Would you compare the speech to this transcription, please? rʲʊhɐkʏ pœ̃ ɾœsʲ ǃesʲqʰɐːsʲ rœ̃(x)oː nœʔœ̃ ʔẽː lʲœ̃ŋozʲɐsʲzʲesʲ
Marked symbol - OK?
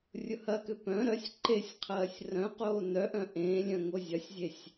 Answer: no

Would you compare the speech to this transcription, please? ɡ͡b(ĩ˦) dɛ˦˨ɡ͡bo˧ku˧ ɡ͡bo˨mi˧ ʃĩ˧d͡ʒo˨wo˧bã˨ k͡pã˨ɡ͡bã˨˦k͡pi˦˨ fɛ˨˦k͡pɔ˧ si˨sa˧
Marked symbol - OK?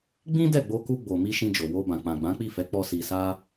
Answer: yes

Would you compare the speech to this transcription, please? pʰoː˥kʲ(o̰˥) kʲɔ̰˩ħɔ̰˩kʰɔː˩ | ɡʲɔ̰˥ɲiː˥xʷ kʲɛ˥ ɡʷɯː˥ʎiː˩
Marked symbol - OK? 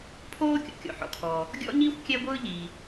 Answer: no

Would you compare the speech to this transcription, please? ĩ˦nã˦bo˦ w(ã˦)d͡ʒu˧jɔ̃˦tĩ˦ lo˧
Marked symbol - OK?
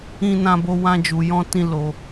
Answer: yes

